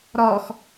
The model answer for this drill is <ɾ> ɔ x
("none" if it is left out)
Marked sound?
ɾ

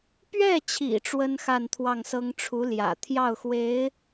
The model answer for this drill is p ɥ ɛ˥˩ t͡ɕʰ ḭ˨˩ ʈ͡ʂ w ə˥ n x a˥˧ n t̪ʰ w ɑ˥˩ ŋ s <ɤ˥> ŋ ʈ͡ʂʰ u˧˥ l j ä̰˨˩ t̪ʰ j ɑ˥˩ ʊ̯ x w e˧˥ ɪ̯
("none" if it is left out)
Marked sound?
ɤ˥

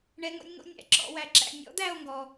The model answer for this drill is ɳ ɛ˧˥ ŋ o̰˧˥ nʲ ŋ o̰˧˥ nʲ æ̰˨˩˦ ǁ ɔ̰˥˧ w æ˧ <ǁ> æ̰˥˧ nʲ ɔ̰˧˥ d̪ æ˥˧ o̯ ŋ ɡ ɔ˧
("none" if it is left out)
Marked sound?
ǁ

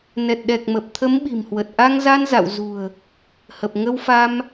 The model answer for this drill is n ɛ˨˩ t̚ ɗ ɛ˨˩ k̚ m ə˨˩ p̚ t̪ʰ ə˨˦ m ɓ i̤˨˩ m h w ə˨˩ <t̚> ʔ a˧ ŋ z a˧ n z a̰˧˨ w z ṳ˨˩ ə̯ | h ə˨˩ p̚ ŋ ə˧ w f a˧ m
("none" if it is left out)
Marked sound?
t̚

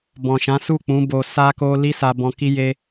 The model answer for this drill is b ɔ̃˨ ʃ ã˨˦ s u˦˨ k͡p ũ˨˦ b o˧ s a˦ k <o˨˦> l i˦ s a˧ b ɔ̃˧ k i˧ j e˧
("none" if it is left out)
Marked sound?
o˦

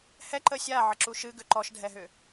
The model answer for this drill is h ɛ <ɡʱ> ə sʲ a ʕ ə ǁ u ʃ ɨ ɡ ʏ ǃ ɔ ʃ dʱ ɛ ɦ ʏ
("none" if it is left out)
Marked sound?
ǃ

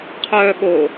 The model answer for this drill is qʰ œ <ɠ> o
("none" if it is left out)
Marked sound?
ɠ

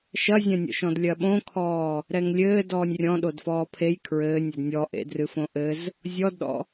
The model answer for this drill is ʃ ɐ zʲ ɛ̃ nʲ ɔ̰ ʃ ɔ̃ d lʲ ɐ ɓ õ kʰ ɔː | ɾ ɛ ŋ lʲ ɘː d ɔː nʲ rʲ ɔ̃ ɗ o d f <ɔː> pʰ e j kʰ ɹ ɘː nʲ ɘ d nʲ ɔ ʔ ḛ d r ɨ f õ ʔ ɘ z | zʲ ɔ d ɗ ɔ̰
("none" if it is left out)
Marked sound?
ɔː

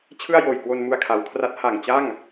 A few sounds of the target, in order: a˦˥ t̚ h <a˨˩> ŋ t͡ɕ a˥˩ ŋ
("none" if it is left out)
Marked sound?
a˨˩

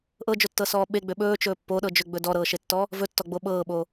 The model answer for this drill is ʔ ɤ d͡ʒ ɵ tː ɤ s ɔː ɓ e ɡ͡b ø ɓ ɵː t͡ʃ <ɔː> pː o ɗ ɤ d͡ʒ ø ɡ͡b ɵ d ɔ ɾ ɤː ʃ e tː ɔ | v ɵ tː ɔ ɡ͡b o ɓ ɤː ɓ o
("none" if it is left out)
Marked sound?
ɵː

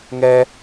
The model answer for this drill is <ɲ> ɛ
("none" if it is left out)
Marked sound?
ŋ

